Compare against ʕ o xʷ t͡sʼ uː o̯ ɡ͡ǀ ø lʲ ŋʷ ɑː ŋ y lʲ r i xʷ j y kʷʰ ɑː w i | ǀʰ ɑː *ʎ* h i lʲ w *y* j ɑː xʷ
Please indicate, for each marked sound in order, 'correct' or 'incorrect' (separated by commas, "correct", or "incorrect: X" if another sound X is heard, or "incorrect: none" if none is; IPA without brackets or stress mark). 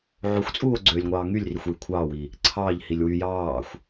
correct, correct